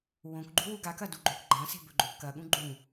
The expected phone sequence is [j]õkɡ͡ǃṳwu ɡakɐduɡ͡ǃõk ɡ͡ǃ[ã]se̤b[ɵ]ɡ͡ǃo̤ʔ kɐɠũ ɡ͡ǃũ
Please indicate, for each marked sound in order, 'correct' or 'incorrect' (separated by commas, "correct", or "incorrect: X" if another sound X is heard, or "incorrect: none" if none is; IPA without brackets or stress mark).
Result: incorrect: w, correct, correct